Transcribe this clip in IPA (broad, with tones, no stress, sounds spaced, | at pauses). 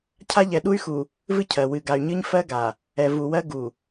cʰ a˦ ʎ ɛ˨ ɗ u˦ y̯ x u˨ | v ɨ˦ cʰ ɜ˨ w ɨ˨ ɡ a˨ y̯ ɲ ɨ˦ ɲ f ɜ˦ ɡ a˨ | ɛ˨ v u˨ w ɜ˦ ɡ u˨